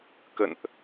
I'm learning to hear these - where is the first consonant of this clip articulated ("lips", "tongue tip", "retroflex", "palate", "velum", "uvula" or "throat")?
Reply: velum